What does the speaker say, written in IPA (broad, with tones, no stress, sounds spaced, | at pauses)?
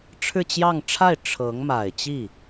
ʈ͡ʂʰ ɻ̩˥˧ t͡ɕ j ɑ˥˧ ŋ ʈ͡ʂʰ a˥˩ ɪ̯ ʈ͡ʂʰ ɤ˧˥ ŋ m a˨˩ ɪ̯ t͡ɕ i˥˩